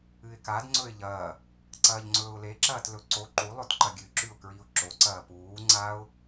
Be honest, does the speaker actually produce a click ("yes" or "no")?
yes